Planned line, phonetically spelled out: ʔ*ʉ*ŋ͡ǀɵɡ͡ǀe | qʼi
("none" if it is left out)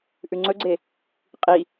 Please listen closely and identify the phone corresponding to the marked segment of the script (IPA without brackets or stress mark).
ʉ